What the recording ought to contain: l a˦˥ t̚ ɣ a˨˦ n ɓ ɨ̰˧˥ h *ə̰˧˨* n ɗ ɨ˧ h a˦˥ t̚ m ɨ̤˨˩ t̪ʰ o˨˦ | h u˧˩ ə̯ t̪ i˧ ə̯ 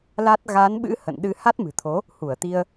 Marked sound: correct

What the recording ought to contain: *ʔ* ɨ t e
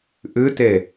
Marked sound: correct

